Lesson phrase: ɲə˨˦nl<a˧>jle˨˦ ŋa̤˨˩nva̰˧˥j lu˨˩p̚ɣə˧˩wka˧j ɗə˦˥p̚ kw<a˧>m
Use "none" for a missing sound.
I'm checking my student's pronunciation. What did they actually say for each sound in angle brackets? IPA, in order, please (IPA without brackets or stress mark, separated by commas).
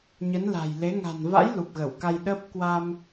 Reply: a̤˨˩, a˧